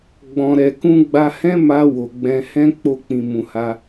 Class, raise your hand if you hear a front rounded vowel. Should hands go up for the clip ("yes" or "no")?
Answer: no